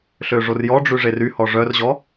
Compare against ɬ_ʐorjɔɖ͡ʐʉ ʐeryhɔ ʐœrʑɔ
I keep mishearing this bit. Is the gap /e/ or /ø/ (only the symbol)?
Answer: ø